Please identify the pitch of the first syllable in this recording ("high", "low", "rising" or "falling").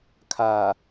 low